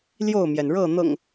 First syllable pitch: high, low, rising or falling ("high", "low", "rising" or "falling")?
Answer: falling